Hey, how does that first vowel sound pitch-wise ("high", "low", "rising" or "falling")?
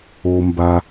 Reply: low